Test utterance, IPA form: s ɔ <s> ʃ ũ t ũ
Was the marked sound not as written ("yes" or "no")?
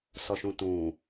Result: yes